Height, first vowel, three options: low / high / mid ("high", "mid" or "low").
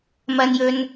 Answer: low